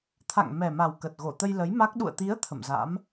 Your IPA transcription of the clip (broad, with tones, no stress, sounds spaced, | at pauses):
t̪ʰ a̰˧˨ ŋ m ɛ˨˩ m a˨˩ w k ə˨˩ t̚ ɣ o˧˩ t̪ ə˧ j l ə˨˦ j m a˦˥ k̚ ɗ ṵ˧˨ ə̯ t̪ i˨˦ ə̯ t̪ʰ ə̰˧˨ m z a̰˧˥ m